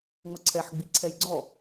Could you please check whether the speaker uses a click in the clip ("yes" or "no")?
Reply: yes